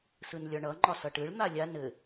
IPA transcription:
sɯnlʲɒɳʌ ŋ͡ǃɒsʌʈɯɭ n̪alʲa nɘ

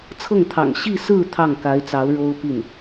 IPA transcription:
t͡sʰɤ˥˩ŋt̪ʰɑ̰˨˩ŋ ɕi˥˧sɹ̩˥˧ t̪ʰɑ˥˩ŋka˧˥ɪ̯t͡sɑ˧˥ʊ̯ ɻo˥ʊ̯pi˥˩n

